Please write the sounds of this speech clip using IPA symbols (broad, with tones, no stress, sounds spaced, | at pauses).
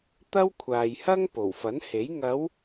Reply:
t̪ ɐ˥ w kʷʰ aː˨ j h ɐ˥ ŋ p o˨˩ w f ɐ˨˥ n h e˨˥ j ŋ ɐ˨˧ w